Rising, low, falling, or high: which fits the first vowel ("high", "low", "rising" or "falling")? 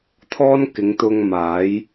high